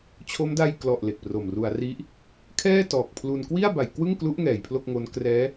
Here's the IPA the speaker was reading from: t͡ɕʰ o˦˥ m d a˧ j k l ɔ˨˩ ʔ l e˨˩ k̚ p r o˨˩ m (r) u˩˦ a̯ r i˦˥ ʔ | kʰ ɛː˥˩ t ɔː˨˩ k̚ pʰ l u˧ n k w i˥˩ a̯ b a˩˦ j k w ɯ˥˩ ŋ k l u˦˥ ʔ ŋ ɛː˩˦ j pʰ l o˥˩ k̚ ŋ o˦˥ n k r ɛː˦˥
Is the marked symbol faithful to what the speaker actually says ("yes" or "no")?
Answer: yes